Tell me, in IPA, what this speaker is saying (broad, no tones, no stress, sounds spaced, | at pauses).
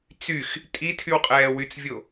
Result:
t͡s y x | tʼ i tʰ y w qʼ ɛː w y t͡s vʲ o